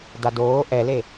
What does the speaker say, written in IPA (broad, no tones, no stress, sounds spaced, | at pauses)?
d a d oː ʔ ɛ l e